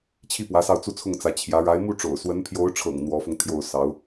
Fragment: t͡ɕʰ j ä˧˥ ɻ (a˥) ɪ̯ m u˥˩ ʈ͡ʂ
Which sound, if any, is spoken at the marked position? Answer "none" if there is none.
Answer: a˧˥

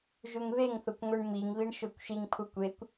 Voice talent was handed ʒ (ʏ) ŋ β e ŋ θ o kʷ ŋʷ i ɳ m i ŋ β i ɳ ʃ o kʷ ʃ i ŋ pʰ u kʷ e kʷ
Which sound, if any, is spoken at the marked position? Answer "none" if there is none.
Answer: u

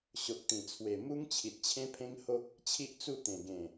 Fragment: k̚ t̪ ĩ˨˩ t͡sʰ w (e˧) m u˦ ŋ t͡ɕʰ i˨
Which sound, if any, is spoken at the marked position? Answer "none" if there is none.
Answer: e˨˩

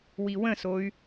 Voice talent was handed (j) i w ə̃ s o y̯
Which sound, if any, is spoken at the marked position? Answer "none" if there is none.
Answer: w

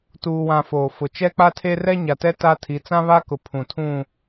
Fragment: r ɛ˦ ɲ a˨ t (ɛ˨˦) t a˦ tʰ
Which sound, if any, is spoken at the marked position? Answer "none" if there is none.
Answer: ɛ˦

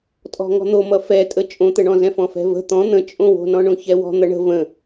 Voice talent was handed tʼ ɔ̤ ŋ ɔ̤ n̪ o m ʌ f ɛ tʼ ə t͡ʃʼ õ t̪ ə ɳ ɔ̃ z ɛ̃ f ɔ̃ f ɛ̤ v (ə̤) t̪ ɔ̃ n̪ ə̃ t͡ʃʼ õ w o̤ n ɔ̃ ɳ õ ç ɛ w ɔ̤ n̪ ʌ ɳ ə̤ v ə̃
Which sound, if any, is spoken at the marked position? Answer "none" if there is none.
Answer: ə̤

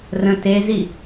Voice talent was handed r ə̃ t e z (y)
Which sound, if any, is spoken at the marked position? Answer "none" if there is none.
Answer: i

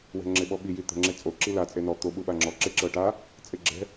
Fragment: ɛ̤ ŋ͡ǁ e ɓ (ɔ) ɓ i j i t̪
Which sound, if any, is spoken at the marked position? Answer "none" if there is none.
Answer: ɔ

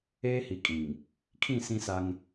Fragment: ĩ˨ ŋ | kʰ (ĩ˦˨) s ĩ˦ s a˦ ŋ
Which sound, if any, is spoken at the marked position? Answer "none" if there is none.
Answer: ĩ˦˨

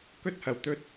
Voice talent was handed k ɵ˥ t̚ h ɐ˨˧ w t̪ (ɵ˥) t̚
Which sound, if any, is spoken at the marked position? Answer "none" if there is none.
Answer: ɵ˥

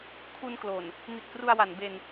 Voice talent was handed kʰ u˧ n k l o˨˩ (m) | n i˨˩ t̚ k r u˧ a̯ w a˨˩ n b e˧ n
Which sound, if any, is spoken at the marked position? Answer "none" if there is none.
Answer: n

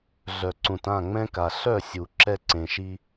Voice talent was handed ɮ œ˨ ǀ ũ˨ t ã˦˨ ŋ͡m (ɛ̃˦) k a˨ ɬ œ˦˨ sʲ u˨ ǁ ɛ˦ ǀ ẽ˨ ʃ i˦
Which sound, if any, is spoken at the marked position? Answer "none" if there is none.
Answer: ɛ̃˦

